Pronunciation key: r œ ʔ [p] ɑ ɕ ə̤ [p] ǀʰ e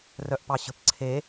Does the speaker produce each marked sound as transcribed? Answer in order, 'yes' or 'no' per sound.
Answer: yes, yes

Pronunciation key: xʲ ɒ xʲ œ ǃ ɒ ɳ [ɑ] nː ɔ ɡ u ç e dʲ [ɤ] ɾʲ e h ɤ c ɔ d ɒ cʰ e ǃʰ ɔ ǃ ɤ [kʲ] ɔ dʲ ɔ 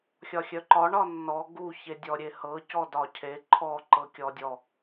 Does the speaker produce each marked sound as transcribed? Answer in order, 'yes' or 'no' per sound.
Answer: no, no, yes

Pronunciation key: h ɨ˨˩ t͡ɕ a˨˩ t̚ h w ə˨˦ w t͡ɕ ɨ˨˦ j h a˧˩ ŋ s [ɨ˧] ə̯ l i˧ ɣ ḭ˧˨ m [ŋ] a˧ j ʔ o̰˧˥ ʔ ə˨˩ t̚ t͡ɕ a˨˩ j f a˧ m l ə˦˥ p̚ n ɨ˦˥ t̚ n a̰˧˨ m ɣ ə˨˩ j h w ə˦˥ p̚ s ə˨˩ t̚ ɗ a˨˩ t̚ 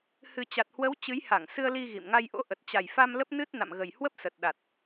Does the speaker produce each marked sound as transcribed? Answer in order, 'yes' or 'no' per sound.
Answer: yes, yes

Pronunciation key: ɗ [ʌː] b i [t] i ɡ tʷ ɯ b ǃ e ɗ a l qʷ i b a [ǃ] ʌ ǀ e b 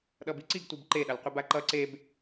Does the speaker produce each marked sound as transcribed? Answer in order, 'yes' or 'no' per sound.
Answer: no, no, yes

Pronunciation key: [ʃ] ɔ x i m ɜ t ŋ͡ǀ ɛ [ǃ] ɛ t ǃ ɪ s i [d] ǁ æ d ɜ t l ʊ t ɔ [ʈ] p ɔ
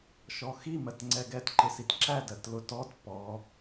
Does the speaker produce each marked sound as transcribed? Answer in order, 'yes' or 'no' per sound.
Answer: yes, no, no, no

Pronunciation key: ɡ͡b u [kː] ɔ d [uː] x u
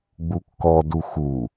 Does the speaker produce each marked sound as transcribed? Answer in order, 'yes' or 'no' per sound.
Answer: yes, no

